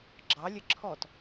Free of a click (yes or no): no